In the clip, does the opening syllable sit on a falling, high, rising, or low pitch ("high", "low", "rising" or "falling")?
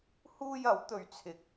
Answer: high